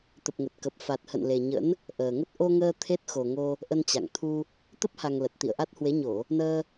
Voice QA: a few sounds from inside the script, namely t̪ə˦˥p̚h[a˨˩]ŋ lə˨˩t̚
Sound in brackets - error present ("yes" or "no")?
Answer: no